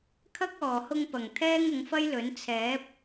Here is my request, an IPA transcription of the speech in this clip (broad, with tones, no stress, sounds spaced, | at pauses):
kʰ ɐ˧ k̚ ɔː˨˩ h ʊ˧ ŋ p ɐ˨˩ ŋ t̪ʰ ɛː˥ ŋ ʊ˨˥ ŋ f ɐ˥ j l ɵ˨˥ n t͡sʰ ɛː˨˥ p̚